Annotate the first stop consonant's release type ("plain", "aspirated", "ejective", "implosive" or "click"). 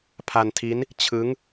aspirated